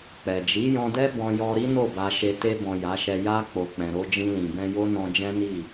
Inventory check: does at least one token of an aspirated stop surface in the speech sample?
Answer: no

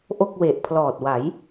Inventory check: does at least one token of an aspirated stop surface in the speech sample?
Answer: yes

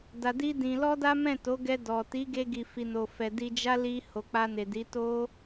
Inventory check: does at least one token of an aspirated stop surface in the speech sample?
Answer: no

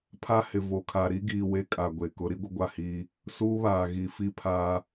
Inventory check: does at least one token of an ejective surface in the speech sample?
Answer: yes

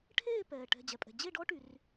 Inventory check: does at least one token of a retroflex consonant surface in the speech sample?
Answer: yes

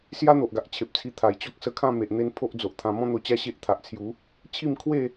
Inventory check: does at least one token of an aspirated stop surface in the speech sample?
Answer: yes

